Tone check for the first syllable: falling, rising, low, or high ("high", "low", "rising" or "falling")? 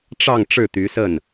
falling